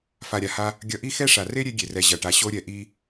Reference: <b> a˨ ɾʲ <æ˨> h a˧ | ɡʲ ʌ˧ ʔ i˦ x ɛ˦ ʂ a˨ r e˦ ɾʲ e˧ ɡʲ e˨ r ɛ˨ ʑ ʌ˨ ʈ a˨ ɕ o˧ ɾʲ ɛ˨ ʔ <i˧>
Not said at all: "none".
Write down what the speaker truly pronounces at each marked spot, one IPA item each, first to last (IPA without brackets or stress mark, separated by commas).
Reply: f, a˨, i˧